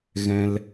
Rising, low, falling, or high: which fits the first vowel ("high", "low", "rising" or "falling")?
high